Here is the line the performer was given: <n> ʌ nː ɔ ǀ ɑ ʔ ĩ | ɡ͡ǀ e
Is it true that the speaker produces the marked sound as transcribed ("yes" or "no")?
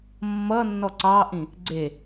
no